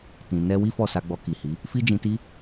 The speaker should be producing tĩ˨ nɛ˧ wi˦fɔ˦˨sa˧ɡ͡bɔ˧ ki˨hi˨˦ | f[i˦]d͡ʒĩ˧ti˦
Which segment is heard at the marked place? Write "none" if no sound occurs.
i˦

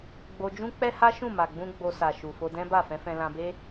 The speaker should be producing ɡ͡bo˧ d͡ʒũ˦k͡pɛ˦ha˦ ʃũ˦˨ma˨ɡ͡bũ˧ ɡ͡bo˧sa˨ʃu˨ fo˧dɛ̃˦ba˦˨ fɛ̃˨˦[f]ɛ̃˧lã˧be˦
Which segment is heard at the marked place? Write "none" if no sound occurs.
f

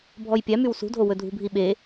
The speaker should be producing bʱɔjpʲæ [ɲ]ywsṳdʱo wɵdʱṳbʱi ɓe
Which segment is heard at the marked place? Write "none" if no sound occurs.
m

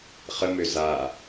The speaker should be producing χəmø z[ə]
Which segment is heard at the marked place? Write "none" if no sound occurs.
a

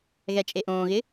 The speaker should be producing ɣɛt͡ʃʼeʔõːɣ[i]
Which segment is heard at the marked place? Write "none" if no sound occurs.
ɪ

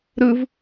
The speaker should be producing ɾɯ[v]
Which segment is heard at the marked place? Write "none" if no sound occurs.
v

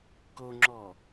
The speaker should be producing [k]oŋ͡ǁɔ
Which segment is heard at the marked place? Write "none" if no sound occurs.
k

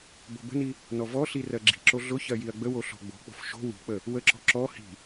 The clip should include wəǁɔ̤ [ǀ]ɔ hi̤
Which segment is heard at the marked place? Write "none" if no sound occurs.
ǁ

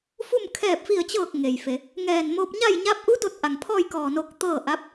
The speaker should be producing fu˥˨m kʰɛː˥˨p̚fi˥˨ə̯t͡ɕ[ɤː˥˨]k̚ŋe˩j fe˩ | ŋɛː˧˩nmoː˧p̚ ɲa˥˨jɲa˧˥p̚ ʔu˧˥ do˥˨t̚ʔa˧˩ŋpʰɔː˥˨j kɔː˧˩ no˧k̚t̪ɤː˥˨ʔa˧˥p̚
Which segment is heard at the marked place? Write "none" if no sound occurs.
ɤː˥˨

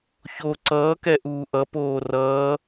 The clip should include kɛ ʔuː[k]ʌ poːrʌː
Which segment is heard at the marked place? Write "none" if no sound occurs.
ʔ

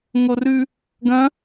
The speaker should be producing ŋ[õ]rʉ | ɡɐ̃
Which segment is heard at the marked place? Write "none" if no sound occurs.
o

